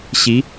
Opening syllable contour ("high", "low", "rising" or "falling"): rising